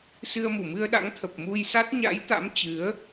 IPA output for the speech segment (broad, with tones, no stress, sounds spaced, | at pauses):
s ɨ˧ ə̯ m u˧˩ m ɨ˧ ə̯ ɗ a̰˧˥ ŋ t̪ʰ ə˨˩ p̚ m u˧ j s a˦˥ t̚ ɲ a̰˧˥ j t̪ a̰˧˥ m t͡ɕ ɨ˨˦ ə̯